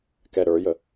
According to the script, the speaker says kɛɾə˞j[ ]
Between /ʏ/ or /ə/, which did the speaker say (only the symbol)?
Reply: ə